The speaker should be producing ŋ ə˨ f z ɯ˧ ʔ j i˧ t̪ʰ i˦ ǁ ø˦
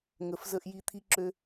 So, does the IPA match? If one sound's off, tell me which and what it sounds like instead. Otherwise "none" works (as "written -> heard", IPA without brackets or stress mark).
ɯ˧ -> ə˧